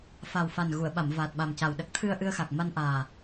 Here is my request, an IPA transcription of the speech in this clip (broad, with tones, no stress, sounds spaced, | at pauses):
f a˨˩ w f a˨˩ n ɣ u˨˩˨ ə̯ ɓ a˨˩˨ m v aː˨˩ t̚ ɓ a˨˩ m c a˨˩ w ɗ ə˦˥ k̚ t̪ʰ ɨ˧ ə̯ ʔ ɨ˧ ə̯ x a˨˩ k̚ m a˧ n ʔ aː˨˩